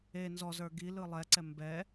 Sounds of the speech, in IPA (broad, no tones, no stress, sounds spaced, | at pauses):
e n z ɔ z ə˞ ɡ i l ɯ lˠ ɛ ǀ ɛ m b ɛ